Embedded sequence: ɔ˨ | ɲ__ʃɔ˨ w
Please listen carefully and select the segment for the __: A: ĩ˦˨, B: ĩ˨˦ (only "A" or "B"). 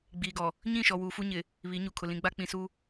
A